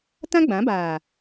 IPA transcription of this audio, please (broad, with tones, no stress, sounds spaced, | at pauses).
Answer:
t ã˦ ɡ͡b ã˨˦ b aː˨